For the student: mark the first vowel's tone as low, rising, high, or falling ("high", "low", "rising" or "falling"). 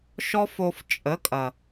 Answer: high